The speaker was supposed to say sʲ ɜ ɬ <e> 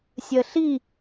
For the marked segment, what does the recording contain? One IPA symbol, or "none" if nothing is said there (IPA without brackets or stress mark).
i